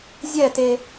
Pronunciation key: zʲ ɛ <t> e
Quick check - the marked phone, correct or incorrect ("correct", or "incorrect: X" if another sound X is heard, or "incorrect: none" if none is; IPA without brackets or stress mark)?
correct